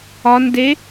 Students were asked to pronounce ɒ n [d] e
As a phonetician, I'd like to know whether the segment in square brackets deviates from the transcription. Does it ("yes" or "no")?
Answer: no